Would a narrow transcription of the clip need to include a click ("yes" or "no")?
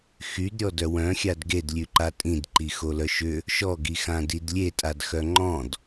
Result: yes